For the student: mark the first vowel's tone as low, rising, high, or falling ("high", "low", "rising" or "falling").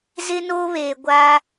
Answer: high